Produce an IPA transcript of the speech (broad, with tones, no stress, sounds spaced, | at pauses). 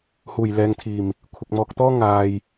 h uː˨˩ j l ɛː˨ ŋ t̪ʰ iː˨˩ m | kʷʰ ɪ˨ k̚ m ɔː˨ k̚ t̪ ɔː˥ ŋ aː˨ j